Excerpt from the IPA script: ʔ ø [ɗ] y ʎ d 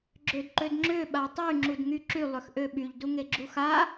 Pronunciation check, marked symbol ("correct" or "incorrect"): incorrect